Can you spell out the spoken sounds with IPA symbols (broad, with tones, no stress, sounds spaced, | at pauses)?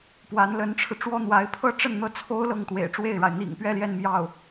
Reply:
p w a˧˥ n l ə˧˥ n ʈ͡ʂʰ ɻ̩˧ ʈ͡ʂ w ɔ˥ n̪ w a˧˥ ɪ̯ pʰ ɤ˥ ʈ͡ʂ ə˥˩ n n̪ ɤ˥ t͡sʰ o˥ ʊ̯ l ɤ˥˩ ŋ t̪ w ḛ˨˩ ɪ̯ ʈ͡ʂ w e˥˩ ɪ̯ ɻ a˩ ɪ̯ n̪ ḭ˨˩ ŋ p ɥ ɛ˥˧ l j ɛ˥˧ n m j ɑ˥˩ ʊ̯